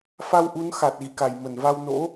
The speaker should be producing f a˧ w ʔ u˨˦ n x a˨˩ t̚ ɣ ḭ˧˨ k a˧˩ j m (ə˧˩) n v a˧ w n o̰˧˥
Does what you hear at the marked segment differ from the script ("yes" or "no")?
no